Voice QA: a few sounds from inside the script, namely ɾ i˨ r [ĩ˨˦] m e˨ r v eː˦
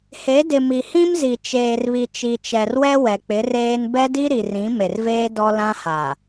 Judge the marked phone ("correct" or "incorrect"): correct